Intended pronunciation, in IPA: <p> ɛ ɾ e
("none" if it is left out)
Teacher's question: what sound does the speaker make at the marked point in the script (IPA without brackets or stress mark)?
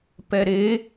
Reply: p